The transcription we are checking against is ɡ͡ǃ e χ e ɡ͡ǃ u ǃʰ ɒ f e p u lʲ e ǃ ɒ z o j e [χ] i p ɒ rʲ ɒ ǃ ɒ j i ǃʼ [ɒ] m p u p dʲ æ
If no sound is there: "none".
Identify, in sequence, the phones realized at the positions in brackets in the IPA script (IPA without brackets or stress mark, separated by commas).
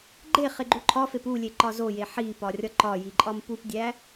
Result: ħ, ɒ